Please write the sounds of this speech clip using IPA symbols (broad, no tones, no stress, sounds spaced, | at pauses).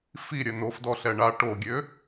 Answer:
f i ɾʲ œ n o f d ɔ ɬ ɛ ɳ a ʈ o ɡʲ ø